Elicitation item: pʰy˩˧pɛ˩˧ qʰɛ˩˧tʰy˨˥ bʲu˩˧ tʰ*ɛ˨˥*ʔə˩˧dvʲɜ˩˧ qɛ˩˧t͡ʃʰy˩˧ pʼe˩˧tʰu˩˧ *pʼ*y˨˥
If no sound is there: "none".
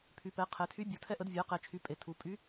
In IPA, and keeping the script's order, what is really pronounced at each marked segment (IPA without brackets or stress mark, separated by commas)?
ɛ˨˥, pʼ